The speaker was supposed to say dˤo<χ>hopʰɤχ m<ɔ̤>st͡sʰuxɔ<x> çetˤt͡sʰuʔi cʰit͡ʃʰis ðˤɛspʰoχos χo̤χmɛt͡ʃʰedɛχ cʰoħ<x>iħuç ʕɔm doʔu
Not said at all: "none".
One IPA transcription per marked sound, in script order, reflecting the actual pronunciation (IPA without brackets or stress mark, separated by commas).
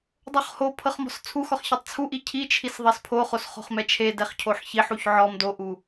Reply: χ, ɔ̤, χ, ç